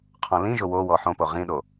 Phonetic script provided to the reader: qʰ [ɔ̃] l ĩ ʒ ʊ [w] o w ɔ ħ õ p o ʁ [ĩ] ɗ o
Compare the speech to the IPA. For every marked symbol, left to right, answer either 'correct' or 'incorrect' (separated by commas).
correct, correct, correct